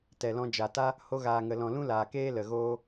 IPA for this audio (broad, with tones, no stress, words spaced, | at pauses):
tɛ˨lɔ̃˧ d͡ʒa˨ta˦ | ho˧ɣaː˨ŋə˨lɔ̃˨ lũ˦laː˨keː˦ lə˨ɣoː˦